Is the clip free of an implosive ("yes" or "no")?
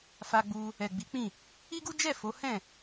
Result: yes